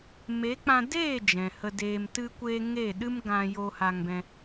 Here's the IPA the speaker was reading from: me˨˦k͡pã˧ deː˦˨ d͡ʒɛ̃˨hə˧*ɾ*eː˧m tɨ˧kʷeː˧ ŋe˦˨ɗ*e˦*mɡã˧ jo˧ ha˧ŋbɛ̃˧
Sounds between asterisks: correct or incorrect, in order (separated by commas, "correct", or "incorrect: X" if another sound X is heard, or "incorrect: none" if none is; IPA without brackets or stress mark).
incorrect: d, incorrect: ɨ˦